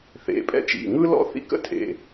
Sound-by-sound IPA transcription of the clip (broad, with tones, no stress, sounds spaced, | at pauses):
θ ḛ˩˧˩ pʼ ɛ̰˥ t͡ʃ ḭ˩˧˩ ŋ ɯ˥ l ɔ̰˥ θ ḭ˥ k ə̰˥ tʰ ḛ˩˧˩